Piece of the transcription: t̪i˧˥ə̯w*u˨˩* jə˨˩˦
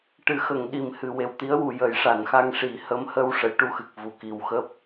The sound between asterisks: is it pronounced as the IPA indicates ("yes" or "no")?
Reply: yes